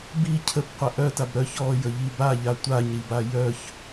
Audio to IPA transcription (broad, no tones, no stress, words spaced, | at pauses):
bi cʰəbqʷə ʔœtab ɾœç ɔjəʎi baʎa tʷaɲɾiba jœç